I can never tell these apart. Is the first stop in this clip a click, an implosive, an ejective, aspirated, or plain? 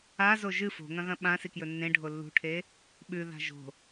implosive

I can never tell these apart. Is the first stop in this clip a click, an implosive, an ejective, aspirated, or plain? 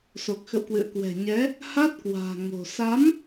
plain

